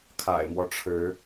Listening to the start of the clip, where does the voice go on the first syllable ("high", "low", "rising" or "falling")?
low